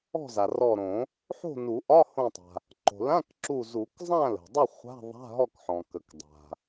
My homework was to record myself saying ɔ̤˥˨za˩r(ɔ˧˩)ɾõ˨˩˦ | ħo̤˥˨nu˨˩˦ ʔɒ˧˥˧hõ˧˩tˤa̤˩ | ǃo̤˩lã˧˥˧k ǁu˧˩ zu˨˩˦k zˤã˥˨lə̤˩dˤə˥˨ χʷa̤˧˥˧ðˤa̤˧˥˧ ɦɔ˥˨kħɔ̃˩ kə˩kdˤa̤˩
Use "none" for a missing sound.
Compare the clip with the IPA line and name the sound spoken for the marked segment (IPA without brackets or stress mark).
ɔ˧˩